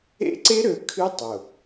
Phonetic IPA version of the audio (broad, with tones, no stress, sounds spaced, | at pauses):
ḛ˦ ǀ e˦ ɾ ø˨ kʰ ɨ˦ tˤ ʊ˨